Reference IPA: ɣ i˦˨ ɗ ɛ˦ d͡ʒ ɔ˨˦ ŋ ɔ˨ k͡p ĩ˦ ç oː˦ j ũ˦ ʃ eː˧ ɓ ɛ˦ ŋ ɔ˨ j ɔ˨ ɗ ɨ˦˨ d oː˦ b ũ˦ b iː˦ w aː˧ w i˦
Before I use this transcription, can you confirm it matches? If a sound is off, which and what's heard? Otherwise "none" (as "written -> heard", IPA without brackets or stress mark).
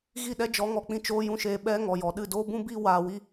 ç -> t͡ʃ